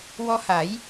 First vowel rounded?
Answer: yes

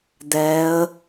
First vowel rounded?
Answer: no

